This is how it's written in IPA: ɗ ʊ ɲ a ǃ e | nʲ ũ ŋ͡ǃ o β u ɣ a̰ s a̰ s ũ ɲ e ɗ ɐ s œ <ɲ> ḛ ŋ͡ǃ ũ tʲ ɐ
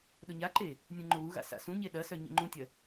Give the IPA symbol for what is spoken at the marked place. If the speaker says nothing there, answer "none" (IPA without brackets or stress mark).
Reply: ɲ